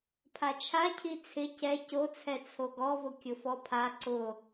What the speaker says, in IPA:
pʰ a t͡ʃʰ a cʰ i t͡sʰ ɪ c ɛ c o t͡sʰ ɛ t͡sʰ o ɡ ɔ v ʊ kʲ ʊ f ɔ pʰ a ǀ ʊ

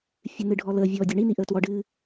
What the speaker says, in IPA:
fʲ ɨ n ɨ ɖʱ ɔ l əː vʲ ɔː dʲ ɔ ɳ i n i ʔ əː t w ɔ ɖ ɨː

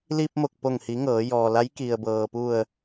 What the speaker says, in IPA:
l iː˧ p̚ m o˧˩ k̚ p o˧˩ ŋ h i˩˧ ŋ ɤː˩˧ j ɔː˩ l a˧˥ j k i˩ ə̯ b ɤː˩ p u˧˩ ə̯

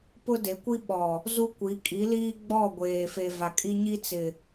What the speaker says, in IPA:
p ʊ˦ d e˨˦ kʷ i˦ ɓ ɔ˨ | z u˦ kʷ i˨˦ kʼ i˨˦ l iː˦ ɡ͡b ɔ˦˨ ɡʷ eː˨ f e˨ v a˨ kʼ i˦ ɲ i˦ t͡s ɪ˨

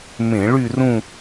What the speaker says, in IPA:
m ẽ˧˩˧ ɭ y˥˧ r ũ˥˧

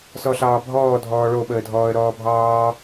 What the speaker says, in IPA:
s ɔ ɬ ɑː bʱ ɔː dʱ ɔː ɭ o ɓ əː dʱ ɔː ə̯ ɾ ɔː bʱ ɑː

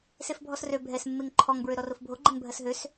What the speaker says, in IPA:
s e f bʱ ɔ s r ø bʱ ɛ s mː e ŋ ǃʰ ɔ ŋ b ɹ ø ɾ ɔ r o f bʱ o ɡ͡ǃ ɛ ŋ bʱ ɜ s ɦ ø s

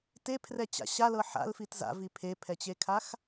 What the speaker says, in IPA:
t e pʰ r ɛ t͡ɕ a̰ ɕ a l ɤ ħ a̰ l f i t z a̰ v i pʰ e pʰ ɛ t͡ɕ e kʰ a x

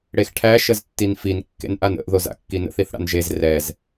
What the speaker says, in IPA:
ɽ e x ʈʰ æ ʃ ə z tː i n f i n kː ḛ n ʔ a n ə̰ ʔ ð o z a̰ kː i n ə̰ θ i θ ɽ a̰ n ʒ e z r ɛ z

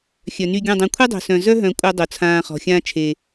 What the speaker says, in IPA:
xʲ œ˨ n y˧ ɡʲ œ̃˦˨ dˤ ɛ̃˧ kʷʰ ɛ˦ dˤ o̤˨ s œ̃˨ z œ˦ ɦ œ̃˧ kʷʼ œ˦ dˤ o˨ t͡sʰ ãː˧ χ ɔ̤˨ xʲ ãː˦ t͡ʃʰ e˨

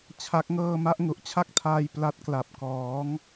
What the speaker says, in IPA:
t͡ɕʰ a˦˥ k̚ ŋ ɤː˥˩ m a˦˥ ʔ ŋ u˨˩ ʔ t͡ɕʰ a˥˩ k̚ tʰ aː˧ j p l a˦˥ t̚ k l a˨˩ p̚ k ɔː˩˦ ŋ

